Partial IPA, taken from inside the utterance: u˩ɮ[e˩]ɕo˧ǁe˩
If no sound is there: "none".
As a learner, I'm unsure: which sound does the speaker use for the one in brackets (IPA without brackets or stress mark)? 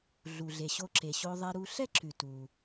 e˩